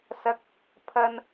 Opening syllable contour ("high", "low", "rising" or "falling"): rising